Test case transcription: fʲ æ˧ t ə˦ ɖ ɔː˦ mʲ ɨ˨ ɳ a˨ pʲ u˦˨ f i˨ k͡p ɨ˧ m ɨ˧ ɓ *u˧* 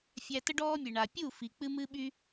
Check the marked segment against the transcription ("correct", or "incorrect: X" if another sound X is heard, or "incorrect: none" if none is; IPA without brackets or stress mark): incorrect: y˧